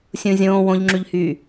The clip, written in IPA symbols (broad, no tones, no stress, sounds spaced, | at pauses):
sʲ ũ zʲ õː w õ ʎ ŋ͡ǁ y ʎ h yː